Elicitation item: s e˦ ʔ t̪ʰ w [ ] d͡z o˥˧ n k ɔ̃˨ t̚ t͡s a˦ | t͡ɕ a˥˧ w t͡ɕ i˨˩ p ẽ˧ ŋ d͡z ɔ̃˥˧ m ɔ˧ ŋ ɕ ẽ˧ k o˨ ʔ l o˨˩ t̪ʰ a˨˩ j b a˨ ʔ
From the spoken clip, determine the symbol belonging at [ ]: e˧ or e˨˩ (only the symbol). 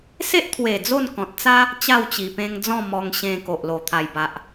e˨˩